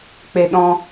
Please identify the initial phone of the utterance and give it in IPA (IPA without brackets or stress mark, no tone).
k͡p